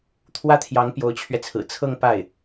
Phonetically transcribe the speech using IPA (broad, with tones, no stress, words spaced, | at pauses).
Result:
t̪ʰwä˥t̪ʰjɑ˧˥ŋ pjo˧˥ʊ̯t͡ɕʰɥɛ˧t͡sʰɹ̩˨˩ t͡sʰɤ˥˧ŋ pa˥˩ɪ̯